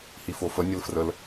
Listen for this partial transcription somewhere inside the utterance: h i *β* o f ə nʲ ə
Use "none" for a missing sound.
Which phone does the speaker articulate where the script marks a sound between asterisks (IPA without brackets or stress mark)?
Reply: f